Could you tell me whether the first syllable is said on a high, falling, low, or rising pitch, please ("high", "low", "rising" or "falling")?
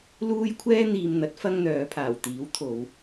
high